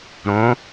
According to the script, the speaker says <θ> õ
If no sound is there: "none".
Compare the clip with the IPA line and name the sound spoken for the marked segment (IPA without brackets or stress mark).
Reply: ɾ